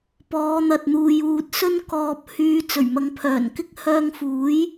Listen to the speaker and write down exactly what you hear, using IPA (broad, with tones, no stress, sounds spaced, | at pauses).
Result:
p ɔː˨˧ n̪ ɐ˨ t̚ n̪ uː˨ j uː˧ t̚ s ɵ˥ n k ɔː˧ p̚ h yː˧ t͡s ɵ˨˩ ɥ m ɐ˨˧ ŋ pʰ œː˨˩ n k ɪ˥ k̚ h œː˧ ŋ f uː˨˥ j